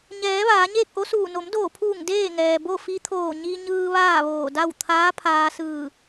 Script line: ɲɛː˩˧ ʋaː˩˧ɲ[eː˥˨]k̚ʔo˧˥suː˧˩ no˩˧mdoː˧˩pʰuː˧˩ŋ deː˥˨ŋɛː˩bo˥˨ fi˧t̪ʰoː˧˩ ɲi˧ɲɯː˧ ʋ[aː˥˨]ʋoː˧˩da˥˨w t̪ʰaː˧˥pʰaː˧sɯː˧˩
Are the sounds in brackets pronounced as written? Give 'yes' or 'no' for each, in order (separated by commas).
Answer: yes, yes